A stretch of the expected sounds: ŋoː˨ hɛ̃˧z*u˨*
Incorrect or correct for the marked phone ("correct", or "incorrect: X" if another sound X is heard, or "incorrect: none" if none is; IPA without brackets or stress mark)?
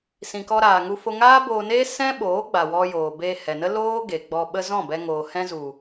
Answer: correct